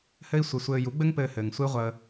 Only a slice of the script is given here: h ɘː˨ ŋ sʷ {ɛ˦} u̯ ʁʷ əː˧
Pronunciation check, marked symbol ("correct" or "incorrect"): incorrect